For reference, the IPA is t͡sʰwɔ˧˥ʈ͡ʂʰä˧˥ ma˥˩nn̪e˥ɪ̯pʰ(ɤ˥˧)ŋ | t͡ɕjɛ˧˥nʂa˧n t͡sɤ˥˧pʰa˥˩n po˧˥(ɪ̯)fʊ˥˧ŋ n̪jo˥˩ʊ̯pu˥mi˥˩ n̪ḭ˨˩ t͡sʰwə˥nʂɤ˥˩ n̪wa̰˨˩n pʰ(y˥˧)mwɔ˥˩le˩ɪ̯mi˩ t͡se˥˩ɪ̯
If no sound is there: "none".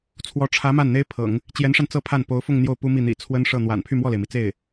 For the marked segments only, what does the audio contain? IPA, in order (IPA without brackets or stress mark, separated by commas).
ɤ̰˨˩˦, ʊ̯, y˥˧